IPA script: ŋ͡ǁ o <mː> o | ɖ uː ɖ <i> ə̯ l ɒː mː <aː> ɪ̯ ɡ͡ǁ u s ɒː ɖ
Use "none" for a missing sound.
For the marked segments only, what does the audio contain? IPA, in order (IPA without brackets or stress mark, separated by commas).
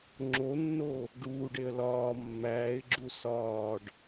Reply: nː, e, æː